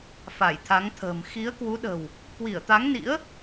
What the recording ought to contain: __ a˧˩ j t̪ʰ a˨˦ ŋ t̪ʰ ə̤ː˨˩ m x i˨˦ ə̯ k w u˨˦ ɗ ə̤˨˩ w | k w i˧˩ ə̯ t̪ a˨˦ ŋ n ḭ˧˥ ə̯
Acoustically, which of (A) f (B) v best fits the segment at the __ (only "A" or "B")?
A